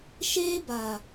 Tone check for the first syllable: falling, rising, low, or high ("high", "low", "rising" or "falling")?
high